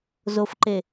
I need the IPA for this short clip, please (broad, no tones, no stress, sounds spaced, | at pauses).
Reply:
z o f ǃ e